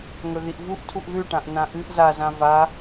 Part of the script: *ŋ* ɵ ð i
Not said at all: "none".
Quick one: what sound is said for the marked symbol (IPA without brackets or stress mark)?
ŋ